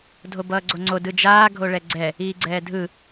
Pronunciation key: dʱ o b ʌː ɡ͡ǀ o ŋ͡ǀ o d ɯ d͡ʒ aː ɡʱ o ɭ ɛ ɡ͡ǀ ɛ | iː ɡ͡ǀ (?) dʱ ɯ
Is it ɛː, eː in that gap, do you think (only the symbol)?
ɛː